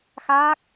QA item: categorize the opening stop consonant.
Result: plain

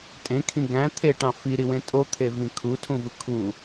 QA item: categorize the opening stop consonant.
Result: ejective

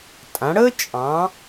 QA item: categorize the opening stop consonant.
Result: ejective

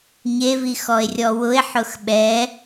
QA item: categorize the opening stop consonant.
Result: implosive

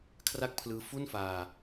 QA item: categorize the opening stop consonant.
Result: aspirated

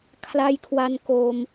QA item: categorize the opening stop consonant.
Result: aspirated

